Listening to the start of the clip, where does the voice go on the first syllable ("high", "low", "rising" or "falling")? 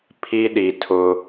high